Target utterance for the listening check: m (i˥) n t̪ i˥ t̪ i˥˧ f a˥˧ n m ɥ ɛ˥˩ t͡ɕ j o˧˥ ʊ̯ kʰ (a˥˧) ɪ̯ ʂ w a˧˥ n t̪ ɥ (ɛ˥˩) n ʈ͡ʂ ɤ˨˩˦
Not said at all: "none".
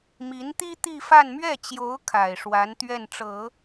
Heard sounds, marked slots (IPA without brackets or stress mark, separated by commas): i˧˥, a˨˩, ɛ˥˩